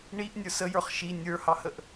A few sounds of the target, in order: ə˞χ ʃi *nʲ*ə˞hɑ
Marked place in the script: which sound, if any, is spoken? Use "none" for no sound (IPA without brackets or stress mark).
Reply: nʲ